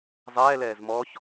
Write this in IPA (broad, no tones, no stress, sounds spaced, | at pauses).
zˤ ɛː l ɛː z m ɔ ç